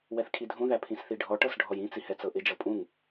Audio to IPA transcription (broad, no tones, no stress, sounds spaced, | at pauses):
w ɛ θ kʰ i dʱ ũ ð æ pʰ ĩ s θ i ɖʱ ɔ ʈ ɤ s ɖʱ ɔ j ĩ t͡s i h ɛ t͡s ɤ ʔ ɪ d͡ʒ ɤ pʼ ũ ŋ